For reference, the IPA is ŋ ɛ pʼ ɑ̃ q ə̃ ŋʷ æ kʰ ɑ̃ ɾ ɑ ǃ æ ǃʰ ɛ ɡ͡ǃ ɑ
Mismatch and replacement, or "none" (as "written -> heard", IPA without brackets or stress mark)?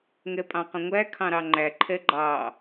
ǃ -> ŋ͡ǃ